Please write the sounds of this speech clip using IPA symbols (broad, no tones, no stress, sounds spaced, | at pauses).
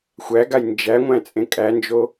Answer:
xʷ æ ɡ a j n d͡ʒ æ ŋʷ æ̃ t͡sʼ ẽ kʼ æ n d͡ʒ o